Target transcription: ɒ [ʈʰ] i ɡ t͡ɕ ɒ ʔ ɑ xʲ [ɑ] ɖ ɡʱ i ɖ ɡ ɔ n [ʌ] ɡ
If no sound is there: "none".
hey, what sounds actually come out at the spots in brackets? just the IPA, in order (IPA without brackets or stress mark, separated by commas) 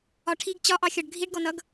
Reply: ʈʰ, ɒ, ʌ